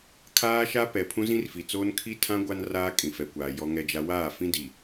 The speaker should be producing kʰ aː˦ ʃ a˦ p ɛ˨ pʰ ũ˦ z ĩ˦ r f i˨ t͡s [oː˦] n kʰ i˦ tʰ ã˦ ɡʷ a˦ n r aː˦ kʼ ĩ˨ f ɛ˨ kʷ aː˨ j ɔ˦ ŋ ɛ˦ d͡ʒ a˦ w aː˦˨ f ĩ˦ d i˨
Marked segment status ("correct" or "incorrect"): correct